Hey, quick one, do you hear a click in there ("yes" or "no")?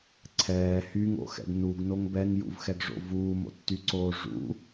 yes